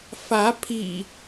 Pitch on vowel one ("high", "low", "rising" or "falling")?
rising